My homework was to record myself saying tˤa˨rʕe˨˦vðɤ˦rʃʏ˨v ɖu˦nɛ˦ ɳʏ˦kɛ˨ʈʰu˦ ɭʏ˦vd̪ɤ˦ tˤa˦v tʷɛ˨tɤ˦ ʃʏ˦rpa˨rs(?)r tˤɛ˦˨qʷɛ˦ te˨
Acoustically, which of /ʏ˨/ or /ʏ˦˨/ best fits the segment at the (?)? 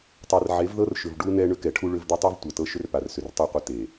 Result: ʏ˨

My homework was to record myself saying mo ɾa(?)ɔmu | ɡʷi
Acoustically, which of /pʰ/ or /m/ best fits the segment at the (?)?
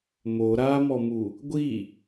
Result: m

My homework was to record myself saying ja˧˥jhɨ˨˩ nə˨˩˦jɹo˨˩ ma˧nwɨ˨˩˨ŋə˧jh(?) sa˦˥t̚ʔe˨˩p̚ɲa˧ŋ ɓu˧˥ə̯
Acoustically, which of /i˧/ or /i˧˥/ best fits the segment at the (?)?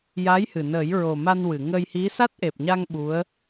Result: i˧˥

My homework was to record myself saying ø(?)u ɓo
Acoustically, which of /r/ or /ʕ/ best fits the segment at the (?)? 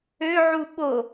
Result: ʕ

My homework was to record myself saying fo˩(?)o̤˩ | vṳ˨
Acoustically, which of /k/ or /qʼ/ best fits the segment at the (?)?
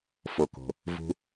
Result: k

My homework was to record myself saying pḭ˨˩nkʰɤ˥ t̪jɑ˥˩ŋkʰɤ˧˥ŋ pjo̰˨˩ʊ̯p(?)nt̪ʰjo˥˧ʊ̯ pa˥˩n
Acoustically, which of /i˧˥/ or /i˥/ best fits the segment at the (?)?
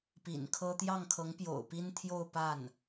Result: i˥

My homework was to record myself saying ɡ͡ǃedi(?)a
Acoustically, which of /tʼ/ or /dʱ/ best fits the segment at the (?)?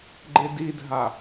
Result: dʱ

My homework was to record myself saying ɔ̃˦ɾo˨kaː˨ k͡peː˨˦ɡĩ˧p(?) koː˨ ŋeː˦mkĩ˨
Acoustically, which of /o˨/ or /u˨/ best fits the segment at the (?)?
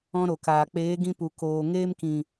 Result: u˨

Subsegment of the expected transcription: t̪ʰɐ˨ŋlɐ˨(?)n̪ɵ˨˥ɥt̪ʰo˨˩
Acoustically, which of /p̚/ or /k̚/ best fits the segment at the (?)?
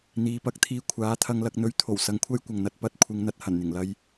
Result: k̚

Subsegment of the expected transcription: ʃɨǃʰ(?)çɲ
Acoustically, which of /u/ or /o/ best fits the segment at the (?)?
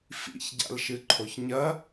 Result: o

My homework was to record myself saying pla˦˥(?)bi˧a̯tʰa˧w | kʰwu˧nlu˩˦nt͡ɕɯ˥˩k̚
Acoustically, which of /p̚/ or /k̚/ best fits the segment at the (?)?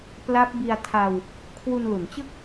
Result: p̚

